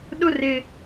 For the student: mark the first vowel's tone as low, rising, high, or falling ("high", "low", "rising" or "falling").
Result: high